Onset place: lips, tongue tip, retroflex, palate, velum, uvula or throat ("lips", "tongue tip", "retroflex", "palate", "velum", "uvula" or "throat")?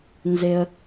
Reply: tongue tip